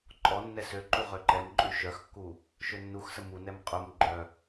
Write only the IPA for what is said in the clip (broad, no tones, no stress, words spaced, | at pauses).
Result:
ǃʼɔ nːɛsøǃu ʁøǃɛmǃʼy ʃœxkːu | ʃønːuxsə munɛm qʼum ɡ͡ǃœ